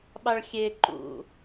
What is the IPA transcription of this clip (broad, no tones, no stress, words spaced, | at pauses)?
ɓɑɭxʲe ǃṵ